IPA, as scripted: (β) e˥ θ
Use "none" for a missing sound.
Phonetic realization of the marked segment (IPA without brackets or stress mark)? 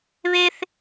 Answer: β